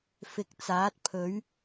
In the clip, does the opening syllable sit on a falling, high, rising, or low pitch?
rising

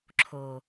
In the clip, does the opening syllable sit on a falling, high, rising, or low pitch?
low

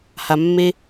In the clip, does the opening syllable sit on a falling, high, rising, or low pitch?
low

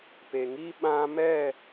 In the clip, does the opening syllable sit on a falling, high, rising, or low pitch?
low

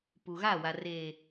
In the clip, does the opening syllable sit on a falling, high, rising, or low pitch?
low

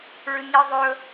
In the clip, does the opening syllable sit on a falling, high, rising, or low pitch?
low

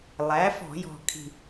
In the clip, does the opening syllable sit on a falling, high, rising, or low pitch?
rising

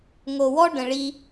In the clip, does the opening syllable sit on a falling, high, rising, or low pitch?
low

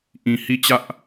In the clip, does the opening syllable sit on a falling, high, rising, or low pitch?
low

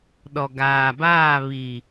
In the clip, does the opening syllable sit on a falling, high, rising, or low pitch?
low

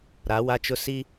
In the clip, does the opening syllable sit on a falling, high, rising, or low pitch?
rising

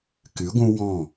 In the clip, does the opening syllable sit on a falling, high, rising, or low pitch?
rising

